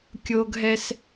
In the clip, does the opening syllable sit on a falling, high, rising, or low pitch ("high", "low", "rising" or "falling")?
low